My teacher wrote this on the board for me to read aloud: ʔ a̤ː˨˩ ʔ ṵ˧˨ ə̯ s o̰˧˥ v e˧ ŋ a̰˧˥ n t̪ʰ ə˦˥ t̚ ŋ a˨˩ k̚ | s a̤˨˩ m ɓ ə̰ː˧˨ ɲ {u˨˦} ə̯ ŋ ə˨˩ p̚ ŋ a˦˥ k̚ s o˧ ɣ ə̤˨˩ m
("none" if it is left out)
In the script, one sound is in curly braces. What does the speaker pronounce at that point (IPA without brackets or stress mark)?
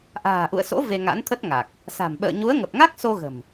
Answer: u˨˦